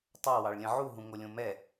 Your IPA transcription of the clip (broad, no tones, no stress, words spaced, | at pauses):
tˤɑwɑɭlʲə̃ ʕuɦũ ŋolʲõmɛ